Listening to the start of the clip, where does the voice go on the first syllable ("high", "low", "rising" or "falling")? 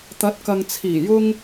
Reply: rising